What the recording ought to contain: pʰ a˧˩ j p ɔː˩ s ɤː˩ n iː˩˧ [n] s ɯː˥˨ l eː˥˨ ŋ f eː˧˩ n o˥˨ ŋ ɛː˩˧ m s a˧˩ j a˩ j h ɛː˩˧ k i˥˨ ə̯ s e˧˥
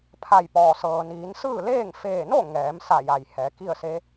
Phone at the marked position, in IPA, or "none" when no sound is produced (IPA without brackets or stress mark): n